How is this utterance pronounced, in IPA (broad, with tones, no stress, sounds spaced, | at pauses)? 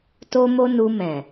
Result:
t o˦ m o˦ n u˧ m ɛ̃˨